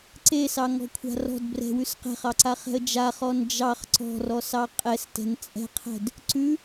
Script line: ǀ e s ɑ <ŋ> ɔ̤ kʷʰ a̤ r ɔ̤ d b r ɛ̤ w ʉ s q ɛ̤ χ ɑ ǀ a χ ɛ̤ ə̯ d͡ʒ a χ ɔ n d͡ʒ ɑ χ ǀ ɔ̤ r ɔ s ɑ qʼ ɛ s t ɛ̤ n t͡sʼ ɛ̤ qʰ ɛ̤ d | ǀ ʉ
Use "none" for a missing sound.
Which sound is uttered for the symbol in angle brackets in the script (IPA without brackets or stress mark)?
ŋ